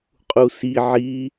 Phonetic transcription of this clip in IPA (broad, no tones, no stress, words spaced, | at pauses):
qʼusi ʕi